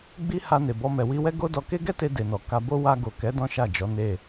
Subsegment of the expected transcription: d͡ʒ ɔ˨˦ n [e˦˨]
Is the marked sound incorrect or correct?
correct